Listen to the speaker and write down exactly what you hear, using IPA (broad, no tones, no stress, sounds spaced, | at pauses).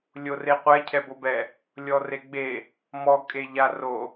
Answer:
lʲ o r e qʷ ɛ cʰ ɛ b o b ɛ | lʲ ɔ r e ɡ͡b e | m ɔ kʼ e ʎ a r o